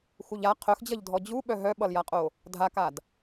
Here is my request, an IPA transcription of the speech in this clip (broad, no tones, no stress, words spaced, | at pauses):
xuʎa qʰœxd͡ʑʌʎdʱɔ d͡ʑuɓœ ɦœɓʌljaqʼo | dʱakad